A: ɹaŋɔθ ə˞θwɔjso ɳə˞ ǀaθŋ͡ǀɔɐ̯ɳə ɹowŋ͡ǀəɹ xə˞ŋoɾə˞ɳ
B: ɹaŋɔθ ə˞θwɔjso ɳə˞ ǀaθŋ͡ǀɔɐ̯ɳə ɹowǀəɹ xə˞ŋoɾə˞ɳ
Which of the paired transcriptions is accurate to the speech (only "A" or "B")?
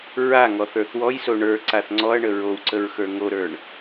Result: B